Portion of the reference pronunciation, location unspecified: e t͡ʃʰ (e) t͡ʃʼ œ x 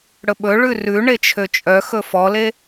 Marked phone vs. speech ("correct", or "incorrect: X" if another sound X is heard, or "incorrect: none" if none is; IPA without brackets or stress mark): incorrect: ø